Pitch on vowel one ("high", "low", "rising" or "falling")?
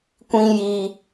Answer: high